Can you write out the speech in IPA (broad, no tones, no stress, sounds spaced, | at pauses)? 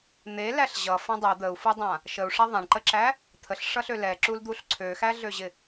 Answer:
n̪ e l æ ɬ ʑ ʌ f ã dˤ ɛ d̪ ə u̯ f u dˤ ã | ʃ ə u̯ ʂ a ðˤ ã ɳ ǃ ə ǁ æ | t̪ʰ ə ɬ ʂ ʌ ɬ ø l ɛ ǁ u l d̪ u ɬ ǀʰ ø x æ ɮ ø ʑ ɪ